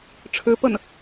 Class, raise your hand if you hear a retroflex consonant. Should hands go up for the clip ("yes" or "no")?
yes